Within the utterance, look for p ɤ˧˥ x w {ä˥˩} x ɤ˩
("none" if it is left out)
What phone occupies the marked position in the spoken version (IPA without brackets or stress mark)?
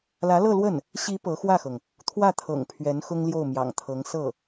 ä˥˩